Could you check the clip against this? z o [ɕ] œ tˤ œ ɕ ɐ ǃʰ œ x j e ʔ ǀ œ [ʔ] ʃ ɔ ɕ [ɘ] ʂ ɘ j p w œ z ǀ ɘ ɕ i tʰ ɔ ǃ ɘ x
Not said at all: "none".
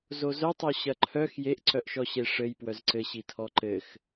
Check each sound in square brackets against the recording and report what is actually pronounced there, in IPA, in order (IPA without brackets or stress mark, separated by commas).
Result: z, ʔ, e